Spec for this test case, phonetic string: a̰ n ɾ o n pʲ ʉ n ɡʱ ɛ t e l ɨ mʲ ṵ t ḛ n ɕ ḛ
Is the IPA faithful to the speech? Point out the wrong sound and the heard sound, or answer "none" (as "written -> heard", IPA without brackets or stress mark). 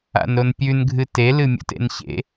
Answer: ɛ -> ɨ